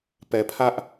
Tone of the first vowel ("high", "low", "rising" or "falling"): low